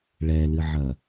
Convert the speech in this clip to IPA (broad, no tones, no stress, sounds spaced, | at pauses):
ɭ ɛ l ɨ ʕ ɐ